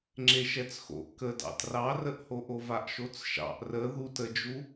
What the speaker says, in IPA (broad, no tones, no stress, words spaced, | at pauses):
ŋ͡ǁeʃɛt͡sxo̰ʔ kədɑ̰ trɑrəʔhoʔo vaʔʃot͡sʃɑ̰ʔ rə ðut əd͡ʒu